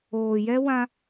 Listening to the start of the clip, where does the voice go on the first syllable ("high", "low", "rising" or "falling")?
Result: low